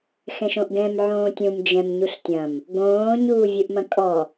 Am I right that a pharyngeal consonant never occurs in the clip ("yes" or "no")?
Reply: no